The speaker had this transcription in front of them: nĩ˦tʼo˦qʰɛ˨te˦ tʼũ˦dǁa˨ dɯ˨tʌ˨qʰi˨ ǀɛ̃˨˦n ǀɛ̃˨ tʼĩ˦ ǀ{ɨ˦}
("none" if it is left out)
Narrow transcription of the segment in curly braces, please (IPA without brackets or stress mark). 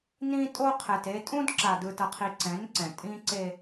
e˦